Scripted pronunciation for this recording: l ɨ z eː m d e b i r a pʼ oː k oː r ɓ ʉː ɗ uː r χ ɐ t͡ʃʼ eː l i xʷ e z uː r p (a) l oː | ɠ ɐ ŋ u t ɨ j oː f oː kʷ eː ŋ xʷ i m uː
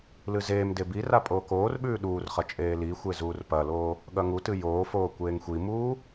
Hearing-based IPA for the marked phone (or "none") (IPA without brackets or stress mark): ɐ